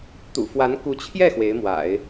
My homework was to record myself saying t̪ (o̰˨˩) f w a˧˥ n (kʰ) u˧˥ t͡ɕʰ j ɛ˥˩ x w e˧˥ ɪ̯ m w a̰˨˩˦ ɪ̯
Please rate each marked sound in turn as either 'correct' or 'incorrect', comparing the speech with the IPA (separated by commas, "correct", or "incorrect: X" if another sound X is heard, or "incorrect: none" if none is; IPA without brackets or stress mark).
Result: incorrect: ṵ˨˩, incorrect: k